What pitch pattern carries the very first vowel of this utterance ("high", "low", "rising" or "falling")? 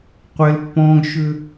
high